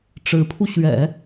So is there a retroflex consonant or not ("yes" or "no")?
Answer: yes